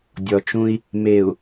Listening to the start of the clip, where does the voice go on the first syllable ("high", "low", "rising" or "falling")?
low